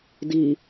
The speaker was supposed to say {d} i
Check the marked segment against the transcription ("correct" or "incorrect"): correct